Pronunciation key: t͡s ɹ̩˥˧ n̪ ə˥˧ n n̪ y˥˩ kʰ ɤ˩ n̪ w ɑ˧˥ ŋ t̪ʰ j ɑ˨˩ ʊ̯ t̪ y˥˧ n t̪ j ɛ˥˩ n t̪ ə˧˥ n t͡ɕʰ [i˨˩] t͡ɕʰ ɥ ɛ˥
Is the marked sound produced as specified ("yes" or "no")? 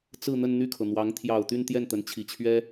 yes